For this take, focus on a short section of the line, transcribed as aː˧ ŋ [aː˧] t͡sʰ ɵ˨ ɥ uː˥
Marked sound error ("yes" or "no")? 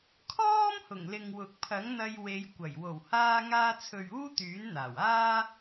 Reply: no